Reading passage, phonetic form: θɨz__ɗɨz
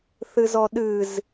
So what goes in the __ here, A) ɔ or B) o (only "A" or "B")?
A